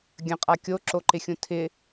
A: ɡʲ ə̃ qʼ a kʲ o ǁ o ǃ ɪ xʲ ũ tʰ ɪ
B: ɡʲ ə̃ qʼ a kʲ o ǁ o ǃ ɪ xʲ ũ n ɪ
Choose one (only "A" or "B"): A